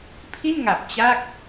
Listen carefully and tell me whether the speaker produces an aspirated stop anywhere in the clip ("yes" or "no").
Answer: yes